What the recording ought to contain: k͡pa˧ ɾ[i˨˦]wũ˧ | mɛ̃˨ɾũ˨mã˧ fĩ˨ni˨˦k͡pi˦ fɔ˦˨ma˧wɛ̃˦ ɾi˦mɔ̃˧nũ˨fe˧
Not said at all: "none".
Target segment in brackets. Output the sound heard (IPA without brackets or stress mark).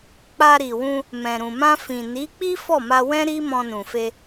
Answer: i˨